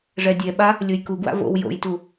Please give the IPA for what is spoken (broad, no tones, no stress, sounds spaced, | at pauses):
ʐ ɛ dʲ ɛ ɓ a | lʲ o j k u ɡ w a̰ v o̰ w j o̰ j t u